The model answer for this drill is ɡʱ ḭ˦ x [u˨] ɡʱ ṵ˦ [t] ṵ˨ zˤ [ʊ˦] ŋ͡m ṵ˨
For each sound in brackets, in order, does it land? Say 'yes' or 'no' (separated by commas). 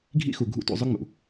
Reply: yes, yes, yes